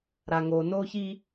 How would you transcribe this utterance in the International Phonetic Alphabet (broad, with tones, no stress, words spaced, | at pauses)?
ɾa˨ ŋo˨no˦ çi˦